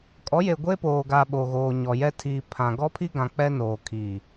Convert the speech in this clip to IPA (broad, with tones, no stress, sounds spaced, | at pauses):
kʼ ɔ˨˦ j e˨ ɡʷ e˦ p oː˨ ɡ a˨ ɓ o˨ ɣ oː˨ ɲ ɔ˨ j ɛ˦ tʰ iː˨ pʰ ã˨ ɡ ɔ˦ pʰ i˦ ɡ ã˨ k͡p ɛ˦ n oː˨ kʰ iː˨